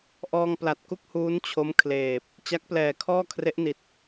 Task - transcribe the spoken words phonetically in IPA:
ʔɔː˧ŋpla˨˩t̚ ku˥˩k̚huː˦˥n t͡ɕʰo˦˥m kʰleː˨˩p̚ | t͡ɕa˦˥k̚plɛː˨˩kʰɔː˥˩ kʰre˦˥ʔ ni˨˩t̚

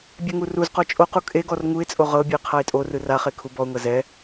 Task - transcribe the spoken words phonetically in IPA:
bʲɛŋuruzqɔ t͡ʃʼoqu kʼeɡɔr ŋuɪ̯t͡sʼo ʁɤbʲɯɪ̯ qʰaɪ̯tʼorɯ raχe kʰubɔʊ̯ŋɤ zɛ

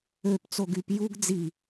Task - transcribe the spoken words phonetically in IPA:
øpt͡so ɡyp juɡ d͡zi

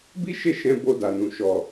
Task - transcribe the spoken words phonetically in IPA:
bi˦ʃe˦˨ ʃɛ̃˧ bo˧da˨nũ˨ ʃɔ˨

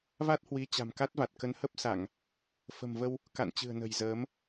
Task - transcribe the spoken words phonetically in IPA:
va˦˥t̚hwi˨˦ t͡ɕa̤˨˩mka˦˥t̚va˨˩t̚ kə˨˦nhə˦˥p̚sa˧˩˨ŋ | fə̤˨˩mvə˧w | ka̰˧˨nt͡ɕɨ̤˨˩ə̯ nə̤˨˩j zəː˨˦m

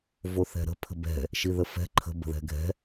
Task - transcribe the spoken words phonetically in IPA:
voθɛ̤ɾə̤ pʰə̤bɛ̤ | ʃiðəfɛ̤ ǃʰə̤ bə̤ðɛ̤ɡʱɛ̤

